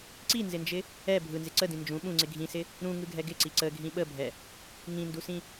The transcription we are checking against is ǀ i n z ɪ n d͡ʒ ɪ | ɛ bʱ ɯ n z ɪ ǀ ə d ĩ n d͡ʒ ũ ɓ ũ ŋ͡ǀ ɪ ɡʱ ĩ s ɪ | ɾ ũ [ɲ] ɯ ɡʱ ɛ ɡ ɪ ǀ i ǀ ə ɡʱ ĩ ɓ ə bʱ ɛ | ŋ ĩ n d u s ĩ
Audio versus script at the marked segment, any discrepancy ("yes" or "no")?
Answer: yes